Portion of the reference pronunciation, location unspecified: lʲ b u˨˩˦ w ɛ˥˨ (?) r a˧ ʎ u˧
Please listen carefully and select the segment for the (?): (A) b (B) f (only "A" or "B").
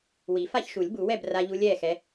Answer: A